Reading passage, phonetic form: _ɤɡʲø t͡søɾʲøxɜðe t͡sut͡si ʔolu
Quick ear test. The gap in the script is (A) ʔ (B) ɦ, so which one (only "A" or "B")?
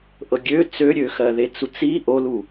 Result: A